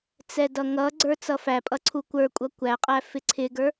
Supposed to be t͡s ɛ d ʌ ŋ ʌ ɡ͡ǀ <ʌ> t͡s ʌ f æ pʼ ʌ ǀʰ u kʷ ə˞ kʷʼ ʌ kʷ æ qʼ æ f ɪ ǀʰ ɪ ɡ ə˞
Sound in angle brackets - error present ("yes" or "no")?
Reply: yes